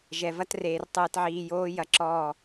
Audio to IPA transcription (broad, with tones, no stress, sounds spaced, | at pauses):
ʒ ɛ˨ v ɐ˦ t r eː˨ r tˤ ɨː˨ t ʕ iː˨ j oː˦ j ɐ˨ ǁ ɔː˦˨